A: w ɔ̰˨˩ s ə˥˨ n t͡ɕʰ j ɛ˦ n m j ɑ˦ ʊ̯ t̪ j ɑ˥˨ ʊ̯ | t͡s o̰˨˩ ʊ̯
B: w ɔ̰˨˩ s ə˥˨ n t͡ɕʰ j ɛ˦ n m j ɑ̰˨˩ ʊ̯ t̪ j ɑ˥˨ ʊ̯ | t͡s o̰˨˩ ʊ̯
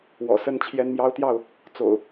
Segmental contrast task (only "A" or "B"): A